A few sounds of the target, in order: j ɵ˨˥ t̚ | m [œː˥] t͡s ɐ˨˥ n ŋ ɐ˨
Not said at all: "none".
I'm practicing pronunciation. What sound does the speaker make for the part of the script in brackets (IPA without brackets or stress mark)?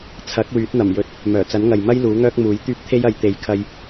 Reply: œː˨˩